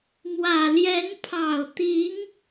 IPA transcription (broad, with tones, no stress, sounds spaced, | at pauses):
m w ä˨˩ l j ɛ˧˥ n pʰ ɑ˨˩ ʊ̯ t̪ i˧˥ ŋ